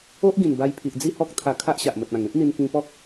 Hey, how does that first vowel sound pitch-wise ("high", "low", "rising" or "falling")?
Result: high